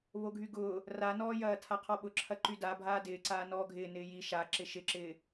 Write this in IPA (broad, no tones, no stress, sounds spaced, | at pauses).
β o ɡʱ y ɡ ʊː | r a n ɔː j ɐː tʰ a qʰ ɔ ɓ ʊ ǁʰ ɐ ǃ y d a bʱ aː d ɪː ǀ aː n ɔː ɡʱ ɪː n ɪː j i ʃ a ǁ ɪ ʃ ɪ ǁ ɪː